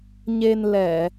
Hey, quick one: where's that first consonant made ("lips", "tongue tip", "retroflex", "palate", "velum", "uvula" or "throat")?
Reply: palate